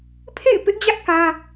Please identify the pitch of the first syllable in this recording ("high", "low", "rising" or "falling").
falling